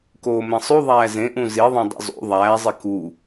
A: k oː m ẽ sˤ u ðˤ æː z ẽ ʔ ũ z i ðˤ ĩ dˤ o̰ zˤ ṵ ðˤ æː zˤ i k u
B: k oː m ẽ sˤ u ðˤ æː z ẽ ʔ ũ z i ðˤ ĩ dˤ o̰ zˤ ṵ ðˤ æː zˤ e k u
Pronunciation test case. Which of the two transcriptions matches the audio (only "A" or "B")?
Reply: B